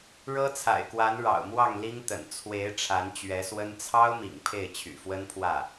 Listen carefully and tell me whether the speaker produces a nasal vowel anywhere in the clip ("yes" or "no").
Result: no